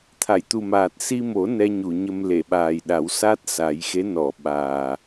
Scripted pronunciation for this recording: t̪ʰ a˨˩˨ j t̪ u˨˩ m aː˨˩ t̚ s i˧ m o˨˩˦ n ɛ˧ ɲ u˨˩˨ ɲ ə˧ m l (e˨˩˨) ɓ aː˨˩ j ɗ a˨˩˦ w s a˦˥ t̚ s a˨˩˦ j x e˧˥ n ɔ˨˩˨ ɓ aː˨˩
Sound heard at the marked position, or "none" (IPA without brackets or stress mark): e˨˩˨